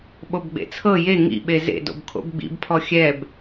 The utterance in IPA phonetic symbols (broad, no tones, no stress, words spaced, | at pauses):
ɓobɡ͡bḛt͡sʰɤ je ŋḭɓe zḛdo̰b kʰo̰bɡ͡bḭbpʰɔ xʲɛb